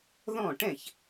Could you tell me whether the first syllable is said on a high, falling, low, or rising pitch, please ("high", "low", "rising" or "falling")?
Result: falling